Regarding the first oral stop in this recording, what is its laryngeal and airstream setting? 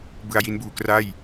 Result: plain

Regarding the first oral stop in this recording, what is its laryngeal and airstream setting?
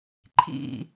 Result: click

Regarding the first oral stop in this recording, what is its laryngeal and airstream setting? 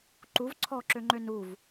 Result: click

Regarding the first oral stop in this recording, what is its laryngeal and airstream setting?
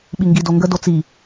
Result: implosive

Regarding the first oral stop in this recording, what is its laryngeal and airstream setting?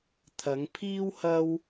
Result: aspirated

